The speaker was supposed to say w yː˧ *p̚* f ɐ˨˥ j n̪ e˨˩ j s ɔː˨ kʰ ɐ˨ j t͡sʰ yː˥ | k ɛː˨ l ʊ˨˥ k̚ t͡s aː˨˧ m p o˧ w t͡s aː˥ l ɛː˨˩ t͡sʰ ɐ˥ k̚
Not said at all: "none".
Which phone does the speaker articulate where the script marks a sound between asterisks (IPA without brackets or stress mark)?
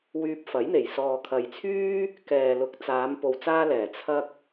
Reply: p̚